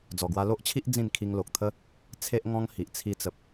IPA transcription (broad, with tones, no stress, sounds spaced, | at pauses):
d͡z ɔ˨˩ ɡ w a˧ l o˦ ʔ t͡ɕʰ i˦ ʔ d͡z ĩ˥˧ n kʰ i˧ ŋ l o˨ k̚ t̪ʰ ə˦ | t͡sʰ e˦ ʔ ŋ ɔ̃˦ ŋ h i˨ ʔ t͡sʰ i˧ t͡s ə˨ p̚